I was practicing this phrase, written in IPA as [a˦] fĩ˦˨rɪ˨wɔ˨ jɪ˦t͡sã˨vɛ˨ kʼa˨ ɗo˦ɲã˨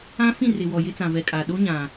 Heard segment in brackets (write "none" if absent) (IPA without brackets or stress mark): ã˦